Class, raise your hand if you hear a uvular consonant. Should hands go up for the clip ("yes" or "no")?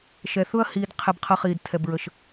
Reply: yes